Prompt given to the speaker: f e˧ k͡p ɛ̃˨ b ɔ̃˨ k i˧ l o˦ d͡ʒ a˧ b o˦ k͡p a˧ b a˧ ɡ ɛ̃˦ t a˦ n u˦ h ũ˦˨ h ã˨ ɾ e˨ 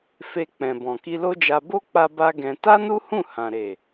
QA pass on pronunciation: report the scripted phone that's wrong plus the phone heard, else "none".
none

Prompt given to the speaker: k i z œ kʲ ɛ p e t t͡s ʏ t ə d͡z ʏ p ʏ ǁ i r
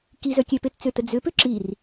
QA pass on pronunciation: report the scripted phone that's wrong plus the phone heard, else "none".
none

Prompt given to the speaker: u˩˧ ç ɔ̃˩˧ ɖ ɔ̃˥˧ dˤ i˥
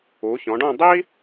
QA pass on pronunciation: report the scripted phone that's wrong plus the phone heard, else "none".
none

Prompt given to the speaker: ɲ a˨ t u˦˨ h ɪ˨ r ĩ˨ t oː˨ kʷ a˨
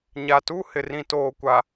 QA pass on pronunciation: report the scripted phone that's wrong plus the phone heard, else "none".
none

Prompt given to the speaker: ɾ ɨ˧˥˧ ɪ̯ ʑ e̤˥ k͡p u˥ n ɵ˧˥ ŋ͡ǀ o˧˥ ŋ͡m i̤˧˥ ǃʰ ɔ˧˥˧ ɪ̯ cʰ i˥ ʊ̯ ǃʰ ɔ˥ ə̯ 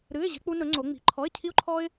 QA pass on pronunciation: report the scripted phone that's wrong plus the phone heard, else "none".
ə̯ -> ɪ̯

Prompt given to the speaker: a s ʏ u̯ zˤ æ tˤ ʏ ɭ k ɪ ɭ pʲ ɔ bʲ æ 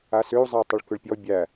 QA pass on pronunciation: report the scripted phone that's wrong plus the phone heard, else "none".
ɪ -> ʏ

